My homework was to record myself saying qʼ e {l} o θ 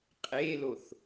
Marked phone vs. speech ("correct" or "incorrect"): correct